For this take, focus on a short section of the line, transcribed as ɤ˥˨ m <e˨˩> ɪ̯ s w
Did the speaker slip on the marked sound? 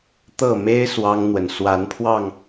yes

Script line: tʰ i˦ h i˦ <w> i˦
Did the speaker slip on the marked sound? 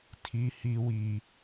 no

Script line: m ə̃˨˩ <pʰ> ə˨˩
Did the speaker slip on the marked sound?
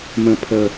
no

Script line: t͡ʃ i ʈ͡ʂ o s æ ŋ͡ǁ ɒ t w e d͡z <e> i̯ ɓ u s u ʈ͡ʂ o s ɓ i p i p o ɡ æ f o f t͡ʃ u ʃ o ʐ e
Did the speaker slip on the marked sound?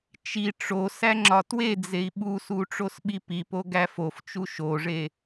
no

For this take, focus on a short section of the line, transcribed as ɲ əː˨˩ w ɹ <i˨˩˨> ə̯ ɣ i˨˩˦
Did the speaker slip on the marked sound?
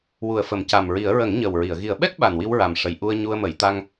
no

